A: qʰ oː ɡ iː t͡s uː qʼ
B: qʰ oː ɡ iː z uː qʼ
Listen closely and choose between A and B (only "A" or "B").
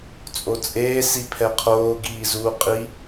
B